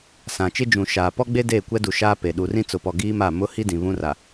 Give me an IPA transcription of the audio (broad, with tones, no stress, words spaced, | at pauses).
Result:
sã˨t͡ʃɪ˦d͡ʒũ˨ʃaː˨ pɔ˦ɡ͡be˦ deː˦˨kʷɛ˦du˨ ʃaː˦pe˨ ɗu˨rĩ˦t͡sʊ˨pɔ˨ ɡiː˦ma˦˨ mʊ˦ hi˦dĩ˨ βũ˦ra˨